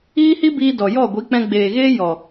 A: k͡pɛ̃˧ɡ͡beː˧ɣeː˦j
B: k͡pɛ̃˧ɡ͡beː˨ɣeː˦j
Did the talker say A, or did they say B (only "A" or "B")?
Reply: B